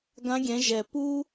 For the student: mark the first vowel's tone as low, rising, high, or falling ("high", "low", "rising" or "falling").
rising